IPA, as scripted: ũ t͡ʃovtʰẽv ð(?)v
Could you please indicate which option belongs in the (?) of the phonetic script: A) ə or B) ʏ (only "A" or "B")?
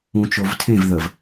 A